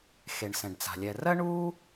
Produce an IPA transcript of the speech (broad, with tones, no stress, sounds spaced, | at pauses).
x e˩ ɳ s ɛ̃˩ ɖ t͡s a̤˩ lʲ ɛ˩ r ɜ˥ ɳ u˥